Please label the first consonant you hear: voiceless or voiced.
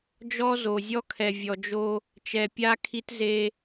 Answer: voiced